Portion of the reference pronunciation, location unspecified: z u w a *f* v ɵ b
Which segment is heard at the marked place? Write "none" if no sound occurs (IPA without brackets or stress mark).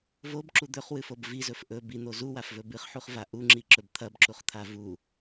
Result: f